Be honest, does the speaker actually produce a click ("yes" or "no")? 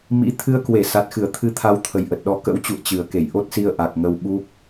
no